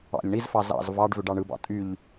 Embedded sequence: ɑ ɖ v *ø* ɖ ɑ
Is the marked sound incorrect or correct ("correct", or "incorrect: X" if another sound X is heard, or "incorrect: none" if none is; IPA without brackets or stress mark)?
correct